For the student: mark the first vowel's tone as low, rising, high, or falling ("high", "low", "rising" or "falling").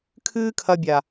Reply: high